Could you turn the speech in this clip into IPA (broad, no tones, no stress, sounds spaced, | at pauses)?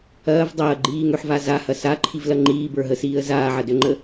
ɐː v dˤ ɐː ɡ͡ǃ iː ŋ ø ħ v a z a h ɐ s a ǃʰ i v l ɐ ŋ͡ǃ iː b ə˞ ɦ ə s iː ə̯ z aː ʕ ɐ d ø ŋ͡ǃ ə